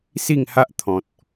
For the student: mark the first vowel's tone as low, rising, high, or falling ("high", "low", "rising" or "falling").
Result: falling